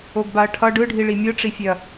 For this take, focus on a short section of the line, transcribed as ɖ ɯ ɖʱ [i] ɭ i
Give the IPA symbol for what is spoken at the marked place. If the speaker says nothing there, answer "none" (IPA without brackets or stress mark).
i